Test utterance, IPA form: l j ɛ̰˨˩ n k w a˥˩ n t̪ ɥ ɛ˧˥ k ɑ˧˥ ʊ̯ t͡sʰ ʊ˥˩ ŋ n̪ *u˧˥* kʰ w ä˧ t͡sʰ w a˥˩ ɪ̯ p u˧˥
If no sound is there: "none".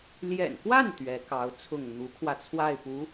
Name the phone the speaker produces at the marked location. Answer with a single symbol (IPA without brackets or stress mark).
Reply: u˧˥